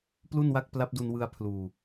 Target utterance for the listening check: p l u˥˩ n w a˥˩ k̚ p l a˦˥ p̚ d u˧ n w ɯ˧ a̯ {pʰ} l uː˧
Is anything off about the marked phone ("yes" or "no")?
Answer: no